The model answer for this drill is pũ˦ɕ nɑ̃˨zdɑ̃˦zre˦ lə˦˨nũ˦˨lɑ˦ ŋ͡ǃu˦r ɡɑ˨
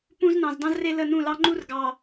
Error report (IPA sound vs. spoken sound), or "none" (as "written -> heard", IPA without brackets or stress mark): ɕ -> z